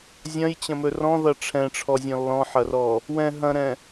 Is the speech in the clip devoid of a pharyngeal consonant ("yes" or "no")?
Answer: no